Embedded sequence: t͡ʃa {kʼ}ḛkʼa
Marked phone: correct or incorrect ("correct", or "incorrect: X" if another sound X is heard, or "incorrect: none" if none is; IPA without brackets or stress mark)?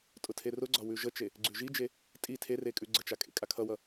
correct